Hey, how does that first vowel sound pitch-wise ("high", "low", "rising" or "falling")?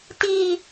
high